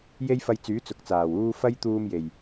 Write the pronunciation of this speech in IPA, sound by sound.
je˥jfɐ˧jt͡syː˨˥ t͡sʊ˨˥k̚t͡saː˨˩wuː˥ fɐ˥jt̪uː˧m je˨˩j

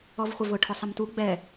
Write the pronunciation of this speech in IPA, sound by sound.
ɔvχʷɪvʊ ʈʰʊsˤɪmtu ɡ͡bɛ

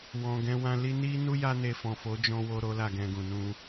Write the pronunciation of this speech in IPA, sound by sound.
wɔ̃˨ɡɛ̃˧wã˧ li˧ni˦nu˦ ja˦ne˧ fɔ̃˨fo˨˦d͡ʒɔ̃˧wo˧ ɾo˦la˦˨ɡɛ̃˧ɡũ˨ nũ˧

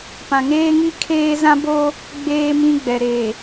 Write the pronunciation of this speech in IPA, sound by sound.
pã˨ŋeː˦ŋi˦kʰeː˦ zã˦bo˦ | ɡ͡beː˦mĩ˦ɡ͡bɛ˨ ɾe˨

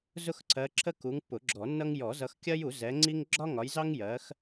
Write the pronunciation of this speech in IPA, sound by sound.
zʊ˦xǀʰɜ˨˦ ǁʰə˦ku˨˦ŋpːʊ˨˩˦ ɡ͡ǁɔ˨˩˦nːʌ˦ŋ jɔ˨˩˦zʌ˨˦xkʲɜ˦ju˨˩˦ zɛ˨˦ŋ͡ǀi˦ŋ ɡ͡ǁɒ˦ŋɒ˨˦jzɑ˦ŋjɜ˨˦x

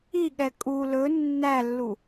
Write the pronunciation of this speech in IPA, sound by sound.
iɠɛ kʼu lɵ nːælːu

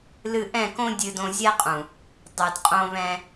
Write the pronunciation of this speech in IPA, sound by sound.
lɨ˧ʔɛ̃˦˨kõ˦ dʲɨ˧dõ˧zʲɛ˦qʼũ˨ | dˤɨ˨dqʼõ˧βɛ̃˧

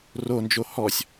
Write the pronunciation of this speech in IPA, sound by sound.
rond͡ʒo hɔsʲ

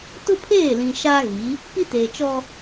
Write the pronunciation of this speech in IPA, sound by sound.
tʊ˦pʰeː˦˨lĩ˨ ʃa˦ ɣi˨˦ | pi˦teː˨t͡ʃɔ˦

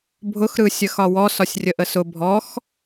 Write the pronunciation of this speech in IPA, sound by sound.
bʱʊxɾɯsʲə xɒwɔ sɒsʲrʲəʔəsʊ bʱɔx

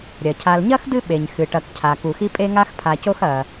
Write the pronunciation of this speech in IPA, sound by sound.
ɾʲɐ˩cʰa˨lɲɐ˥x dɨ˥ɓe˩ɲ xɨ˩ʈɐ˨kcʰa˩ ku˨xi˥ pʼe˦ŋa˦xpʰa˨co˦x ɐ˩

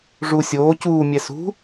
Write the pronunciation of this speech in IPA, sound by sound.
ʐu sʲoː cuːmʲɛ sṳ

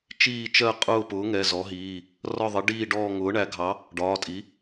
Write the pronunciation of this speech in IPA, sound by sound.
t͡ʃiː˦˨t͡ʃɜ˦˨qʼʊː˦˨pʊː˩˥ ŋɛ˩˧˩zɔ˩˥ɦiː˩˧˩ | rɒ˦˨ðˤɪ˩˥ɖiː˦˨ɖɔː˦˨ ŋʊː˩˥ɳæ˩˥ɡʱɑ˩˥ | ɖɒː˩˧˩tʼi˩˥

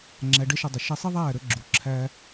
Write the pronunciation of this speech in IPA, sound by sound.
ŋ͡ǁæ˧ɖɛ˦ʃʊ˧dˤə˨ ʃɛ˧sˤi˦ðˤæː˦˨ ɾə˦ɡ͡ǁu˨ǁʰæː˦

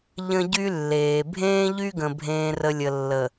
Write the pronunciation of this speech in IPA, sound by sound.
ʎə̃˦ɟy˦lːeː˨ bʱẽː˦ʎy˦ɡə̃˨ bʱẽː˨rə˨ lʲə˨lːə˨

